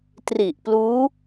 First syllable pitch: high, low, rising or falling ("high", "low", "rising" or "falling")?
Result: low